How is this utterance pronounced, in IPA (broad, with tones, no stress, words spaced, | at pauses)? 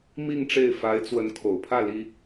mi˥˧ŋʈ͡ʂe˥˩ɪ̯ fa˧˥ɪ̯t͡swə˧˥n kʰo˨˩ʊ̯pʰä˥˩ li˥